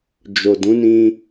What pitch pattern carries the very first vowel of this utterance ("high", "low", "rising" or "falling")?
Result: low